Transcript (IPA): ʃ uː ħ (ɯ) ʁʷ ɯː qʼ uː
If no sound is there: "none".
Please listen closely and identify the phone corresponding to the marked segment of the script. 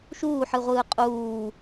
ɯ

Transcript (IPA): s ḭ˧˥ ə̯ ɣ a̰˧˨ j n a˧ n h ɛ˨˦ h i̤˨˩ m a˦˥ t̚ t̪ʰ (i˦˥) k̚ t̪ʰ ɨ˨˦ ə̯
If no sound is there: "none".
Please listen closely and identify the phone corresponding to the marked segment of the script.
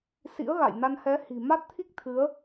i˦˥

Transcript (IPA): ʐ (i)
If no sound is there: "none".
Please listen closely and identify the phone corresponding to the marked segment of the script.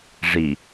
i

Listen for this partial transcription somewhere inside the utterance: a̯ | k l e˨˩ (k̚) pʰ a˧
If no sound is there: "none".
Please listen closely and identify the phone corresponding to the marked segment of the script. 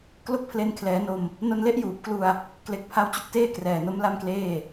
k̚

